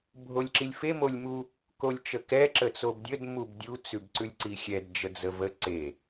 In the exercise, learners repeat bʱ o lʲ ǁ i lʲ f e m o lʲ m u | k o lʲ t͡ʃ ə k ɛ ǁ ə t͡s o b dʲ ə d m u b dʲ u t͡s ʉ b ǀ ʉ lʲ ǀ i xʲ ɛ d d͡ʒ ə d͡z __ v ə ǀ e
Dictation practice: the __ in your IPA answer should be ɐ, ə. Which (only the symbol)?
ə